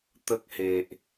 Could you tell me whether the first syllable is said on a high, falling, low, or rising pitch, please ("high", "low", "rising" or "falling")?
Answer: high